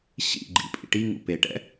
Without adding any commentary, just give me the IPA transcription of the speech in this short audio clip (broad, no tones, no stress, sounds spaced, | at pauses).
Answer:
ɕ ḭ ɡ͡ǃ ḭ pʼ ḭ ʈ i ŋ ṵ p e ʈ ɛ̰